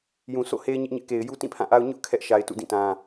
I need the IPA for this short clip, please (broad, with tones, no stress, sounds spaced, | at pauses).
j ũ˨ sʰ o̰˦˨ h e˦ ɪ̯ ɲ ɪ˦ ʔ ɲ ɪ˦ ʔ k e˨ ɪ̯ j u˦ t ĩ˦˨ pʰ ã˦˨ ʔ a˦ ʊ̯ ɲ ʊ˦ ʔ kʰ ɛ˦ ʔ ʃ a˨ ɪ̯ t ṵ˦˨ d ĩ˦˨ t ã˦